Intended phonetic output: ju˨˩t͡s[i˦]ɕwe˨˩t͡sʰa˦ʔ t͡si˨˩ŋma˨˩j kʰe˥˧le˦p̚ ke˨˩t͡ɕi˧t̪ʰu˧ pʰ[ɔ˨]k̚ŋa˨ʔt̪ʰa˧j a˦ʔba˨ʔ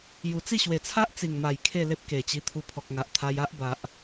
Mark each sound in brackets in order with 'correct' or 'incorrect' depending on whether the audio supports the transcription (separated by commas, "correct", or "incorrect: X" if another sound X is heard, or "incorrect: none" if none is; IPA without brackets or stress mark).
incorrect: i˥˧, correct